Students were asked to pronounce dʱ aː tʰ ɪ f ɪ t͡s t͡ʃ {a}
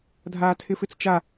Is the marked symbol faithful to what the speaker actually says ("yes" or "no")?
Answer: yes